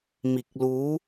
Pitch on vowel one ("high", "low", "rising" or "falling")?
low